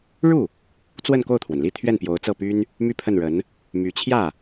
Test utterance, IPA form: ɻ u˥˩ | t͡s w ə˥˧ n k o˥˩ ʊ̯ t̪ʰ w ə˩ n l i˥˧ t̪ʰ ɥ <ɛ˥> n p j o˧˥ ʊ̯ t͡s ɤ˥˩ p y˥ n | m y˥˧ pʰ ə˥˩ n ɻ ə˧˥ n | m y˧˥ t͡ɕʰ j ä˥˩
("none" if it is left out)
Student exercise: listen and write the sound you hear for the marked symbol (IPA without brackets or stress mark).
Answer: ɛ˥˩